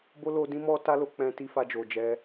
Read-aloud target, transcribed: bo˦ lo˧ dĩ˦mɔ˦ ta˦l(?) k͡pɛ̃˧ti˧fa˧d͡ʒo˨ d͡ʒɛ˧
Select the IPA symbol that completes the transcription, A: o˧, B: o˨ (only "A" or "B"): A